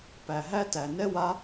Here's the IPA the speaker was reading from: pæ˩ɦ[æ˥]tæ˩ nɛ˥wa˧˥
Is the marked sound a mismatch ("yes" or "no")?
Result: no